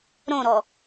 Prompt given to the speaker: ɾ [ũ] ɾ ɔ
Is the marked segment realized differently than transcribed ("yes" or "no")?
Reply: yes